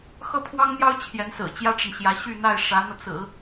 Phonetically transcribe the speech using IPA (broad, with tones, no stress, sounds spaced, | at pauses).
x ɤ˥˩ pʰ w ɑ˥ ŋ n̪ j ɑ˥ ʊ̯ t͡ɕʰ j ɛ˧˥ n s ɹ̩˨˩ t͡ɕ j ä˥ ʈ͡ʂ ə˨ n ɕ j ä˧˥ ɕ y˥˧ n̪ a˥˩ ɪ̯ ʂ ä˧˥ n̪ ɤ˧ t͡s ɹ̩˨˩˦